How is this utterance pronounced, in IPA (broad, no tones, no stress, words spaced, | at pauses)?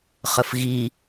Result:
χəfɣi